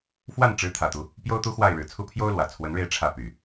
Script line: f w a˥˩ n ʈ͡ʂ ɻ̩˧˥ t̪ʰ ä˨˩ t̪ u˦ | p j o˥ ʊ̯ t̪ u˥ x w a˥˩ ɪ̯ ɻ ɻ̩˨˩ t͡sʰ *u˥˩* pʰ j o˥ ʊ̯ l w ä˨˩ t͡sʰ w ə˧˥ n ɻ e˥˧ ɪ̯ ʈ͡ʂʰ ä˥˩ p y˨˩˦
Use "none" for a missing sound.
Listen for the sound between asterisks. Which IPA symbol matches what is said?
u˥˩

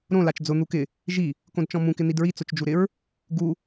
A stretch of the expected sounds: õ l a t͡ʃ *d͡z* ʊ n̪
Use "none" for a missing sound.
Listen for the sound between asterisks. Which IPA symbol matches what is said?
d͡z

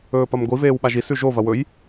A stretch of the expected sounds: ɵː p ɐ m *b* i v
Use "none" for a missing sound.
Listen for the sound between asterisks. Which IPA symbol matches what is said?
ɡʷ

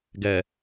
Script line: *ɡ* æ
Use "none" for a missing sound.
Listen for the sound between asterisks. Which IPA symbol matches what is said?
ɡ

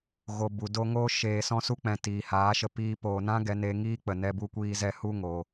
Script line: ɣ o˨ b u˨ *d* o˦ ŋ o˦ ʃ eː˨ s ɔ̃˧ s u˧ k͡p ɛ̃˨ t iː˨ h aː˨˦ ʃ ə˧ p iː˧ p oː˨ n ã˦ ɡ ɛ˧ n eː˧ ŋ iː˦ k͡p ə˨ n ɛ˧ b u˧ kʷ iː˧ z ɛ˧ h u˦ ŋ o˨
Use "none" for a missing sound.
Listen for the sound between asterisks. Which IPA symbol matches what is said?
d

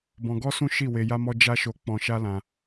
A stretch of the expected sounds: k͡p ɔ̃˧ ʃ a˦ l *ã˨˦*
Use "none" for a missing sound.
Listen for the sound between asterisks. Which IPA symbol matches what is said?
ã˧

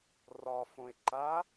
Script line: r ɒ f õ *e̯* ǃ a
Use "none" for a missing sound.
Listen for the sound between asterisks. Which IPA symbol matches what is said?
e̯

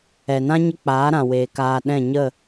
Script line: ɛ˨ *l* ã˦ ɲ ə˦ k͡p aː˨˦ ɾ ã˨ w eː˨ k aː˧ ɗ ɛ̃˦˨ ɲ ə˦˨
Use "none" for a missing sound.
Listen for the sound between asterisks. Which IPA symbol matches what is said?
n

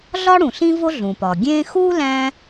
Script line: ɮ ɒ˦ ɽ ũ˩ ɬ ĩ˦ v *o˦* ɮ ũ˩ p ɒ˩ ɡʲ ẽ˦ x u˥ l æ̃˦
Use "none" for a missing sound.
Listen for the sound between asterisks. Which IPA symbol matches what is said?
o˦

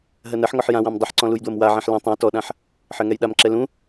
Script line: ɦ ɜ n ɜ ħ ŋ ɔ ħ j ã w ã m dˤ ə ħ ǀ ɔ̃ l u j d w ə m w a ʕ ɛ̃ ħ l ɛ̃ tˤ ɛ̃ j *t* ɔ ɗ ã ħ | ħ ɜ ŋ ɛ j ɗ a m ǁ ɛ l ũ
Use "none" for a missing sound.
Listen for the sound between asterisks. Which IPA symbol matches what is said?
t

